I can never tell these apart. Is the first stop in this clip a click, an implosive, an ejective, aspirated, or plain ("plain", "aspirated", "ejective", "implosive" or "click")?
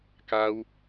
plain